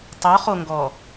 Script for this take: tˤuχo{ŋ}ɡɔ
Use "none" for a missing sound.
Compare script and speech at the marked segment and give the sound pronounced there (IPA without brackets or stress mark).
ŋ